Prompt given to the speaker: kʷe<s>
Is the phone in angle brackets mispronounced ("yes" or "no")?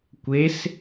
no